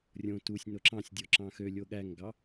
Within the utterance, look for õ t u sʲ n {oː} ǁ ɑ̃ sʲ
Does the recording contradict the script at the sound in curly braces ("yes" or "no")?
yes